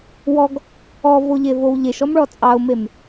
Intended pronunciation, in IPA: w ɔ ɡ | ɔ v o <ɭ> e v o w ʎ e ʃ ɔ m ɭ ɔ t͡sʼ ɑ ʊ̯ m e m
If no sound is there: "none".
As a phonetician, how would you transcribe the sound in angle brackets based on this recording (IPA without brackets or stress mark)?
ʎ